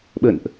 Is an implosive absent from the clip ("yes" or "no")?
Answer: no